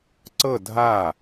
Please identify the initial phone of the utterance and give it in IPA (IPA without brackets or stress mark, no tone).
ǀ